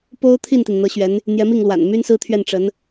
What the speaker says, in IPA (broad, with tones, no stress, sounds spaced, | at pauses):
p o˥ ʊ̯ t̪ʰ i˥˩ n t̪ i˩ n n̪ ɤ˧˥ ɕ ɥ ɛ˧˥ n | n̪ j ɛ˧˥ m i˥˩ ŋ l w a̰˨˩ n m y˥ n s ɹ̩˥ t̪ʰ ɥ ɛ˥˩ n ʈ͡ʂ ə˧˥ n